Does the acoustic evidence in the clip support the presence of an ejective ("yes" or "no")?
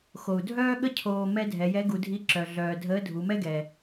no